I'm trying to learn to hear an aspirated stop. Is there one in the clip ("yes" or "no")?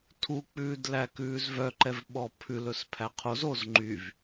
yes